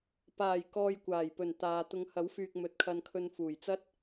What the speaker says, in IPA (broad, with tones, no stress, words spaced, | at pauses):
paː˨˩jkɔː˨j kʷaː˨˩jpɵ˨˩n t̪aː˨t̪ʊ˧ŋ hɐ˨˥wfyː˨k̚ mɵ˨˥t̚kʰɐ˧nkʰɵ˧n fuː˨˩jt͡sɐ˥t̚